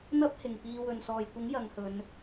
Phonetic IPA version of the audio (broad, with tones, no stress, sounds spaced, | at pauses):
n̪ ɐ˥ p̚ h ɪ˨ ŋ p iː˧ w ɵ˨ n s ɔː˨ j kʷ ɪ˨˥ ŋ j ɐ˨˧ ŋ h ɵ˨˧ n